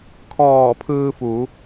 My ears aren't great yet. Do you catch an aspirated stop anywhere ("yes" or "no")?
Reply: yes